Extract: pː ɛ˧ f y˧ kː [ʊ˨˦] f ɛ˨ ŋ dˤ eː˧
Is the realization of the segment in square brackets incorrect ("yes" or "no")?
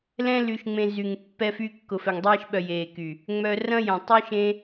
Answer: yes